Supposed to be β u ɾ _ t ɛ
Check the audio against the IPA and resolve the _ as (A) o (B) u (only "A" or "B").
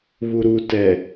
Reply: B